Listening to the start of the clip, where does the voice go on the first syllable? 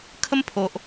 high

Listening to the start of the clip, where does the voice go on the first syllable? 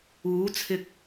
rising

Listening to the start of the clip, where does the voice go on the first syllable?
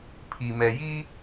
low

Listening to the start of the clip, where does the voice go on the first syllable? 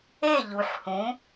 falling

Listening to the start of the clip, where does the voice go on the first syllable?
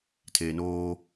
low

